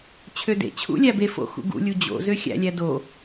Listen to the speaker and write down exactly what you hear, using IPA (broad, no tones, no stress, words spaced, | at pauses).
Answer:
t͡ɕʰødḛt͡ɕʰṵ lʲæbefo̰ xṵɡṵlʲu d͡ʑo̰zø xʲæ̰lʲæ do